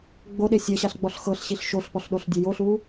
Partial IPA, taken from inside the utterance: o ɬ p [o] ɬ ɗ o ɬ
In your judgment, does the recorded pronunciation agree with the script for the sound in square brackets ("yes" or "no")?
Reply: no